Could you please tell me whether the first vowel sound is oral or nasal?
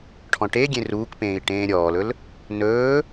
nasal